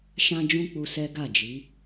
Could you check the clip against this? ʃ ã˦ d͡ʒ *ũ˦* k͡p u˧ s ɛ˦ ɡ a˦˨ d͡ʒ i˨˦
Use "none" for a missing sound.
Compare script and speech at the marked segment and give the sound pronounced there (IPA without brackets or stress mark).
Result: ũ˦